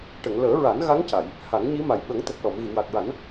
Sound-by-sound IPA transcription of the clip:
ʈ ə˨˩˨ ŋ l əː˨˩˦ ɹ a˨˩˦ n ɣ a˧˥ ŋ c a˨˩˨ j | h a˨˩˦ ŋ ɲ i˧˥ m a˨˩ j ɓ ə˨˩˦ ŋ t̪ ə˨˩ k̚ l ɔ˨˩˨ m ɣ i˨˩˨ w a˨˩ k̚ ɹ a˨˩˦ n

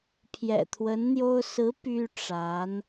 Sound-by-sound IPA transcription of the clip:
pʰ j ɛ̰˨˩ t̪ʰ w ə˧˥ n n̪ j o˥ ʊ̯ s ɹ̩˧˥ p y˥ ʈ͡ʂ a˧˥ n

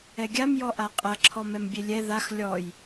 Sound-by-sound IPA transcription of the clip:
ɛ ɡʲ a m j ɔ ʔ a qʼ ɐ ǁʰ ɔ m ɛ m bʲ e lʲ ɛ ð a x lʲ ɔ j

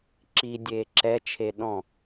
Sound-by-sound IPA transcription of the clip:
ǁ i dʲ eː ǁ ɛ t͡ʃʰ e ɗ ɔ̃

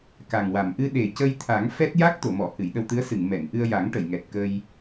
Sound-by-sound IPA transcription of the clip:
k a˨˩ ŋ w a˨˩˨ m ʔ ɨ˧ ɗ e˨˩ c ə˧ j t̪ʰ a˨˩˦ ŋ f ɛ˦˥ t̚ j a˦˥ k̚ t̪ o˨˩˨ m ɔ˨˩˨ h ɨ˨˩˨ j ɗ ə˧ w t̪ ɨ˧˥ ə̯ s ɨ˨˩˨ ŋ m ɛ˨˩˨ n ʔ ɨ˧ ə̯ j a˨˩˦ ŋ ʈ ə˨˩˨ j ŋ ɛ˨˩ t̚ k ə˧ j

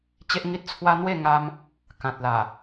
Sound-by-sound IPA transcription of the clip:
t͡ɕ e˦ ʔ ŋ i˦ t̚ t͡sʰ w a˦ n̪ w e˥˧ ŋ a˧ m | k ã˨ t̚ l a˨˩

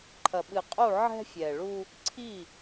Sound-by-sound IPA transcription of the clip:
ǃʰ ɐ˨ ɓ ɨ˨ qʼ u˦˨ ʕ ɛ̤˦ fʲ ɛ˨ ɭ u˦ | ǀʰ i˦˨

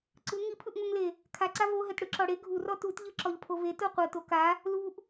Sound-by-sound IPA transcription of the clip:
ǀ ɯ ŋ i pʰ ɯ ʔ ŋ o ŋ l e | kʰ a ǀ a v o ɦ ɛ t ɽ ɯ ǁ ɔ ɽ e ɡʱ u r ɔ t u t ʎ ɯ ǁ ɔ ʎ pʰ o v e t o qʷ ɤ t o k a | l u ʔ

